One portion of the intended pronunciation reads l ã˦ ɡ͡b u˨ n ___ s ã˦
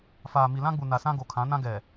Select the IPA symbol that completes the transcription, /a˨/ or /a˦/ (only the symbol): a˨